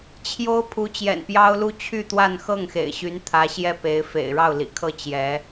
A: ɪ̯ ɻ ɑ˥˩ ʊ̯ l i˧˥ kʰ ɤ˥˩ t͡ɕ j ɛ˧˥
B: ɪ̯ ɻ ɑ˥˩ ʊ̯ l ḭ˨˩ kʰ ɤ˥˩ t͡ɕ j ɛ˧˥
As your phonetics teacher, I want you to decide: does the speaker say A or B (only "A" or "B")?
B